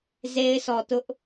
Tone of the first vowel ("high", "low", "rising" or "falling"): high